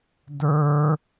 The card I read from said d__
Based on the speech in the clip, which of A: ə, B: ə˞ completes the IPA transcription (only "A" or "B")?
B